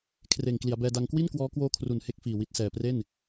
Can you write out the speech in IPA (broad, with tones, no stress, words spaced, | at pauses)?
kʰreː˨˩ŋkli˩˦a̯bɛː˧ da˧ŋkwi˥˩n kwɔː˦˥kwoː˦˥kʰru˨˩n he˦˥k̚fiː˨˩wi˨˩t̚ sɛː˨˩pre˥˩n